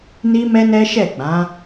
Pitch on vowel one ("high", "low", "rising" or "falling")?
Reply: high